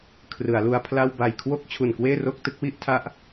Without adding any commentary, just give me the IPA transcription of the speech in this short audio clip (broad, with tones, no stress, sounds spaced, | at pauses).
kʰ r ɯ˩˦ a̯ l u˧ a̯ pʰ l a˥˩ w b a˨˩ j kʰ w o˥˩ k̚ t͡ɕʰ u˨˩ n k w eː˥˩ r o˥˩ k̚ t ɯ˦˥ k̚ w i˦˥ ʔ tʰ a˦˥ ʔ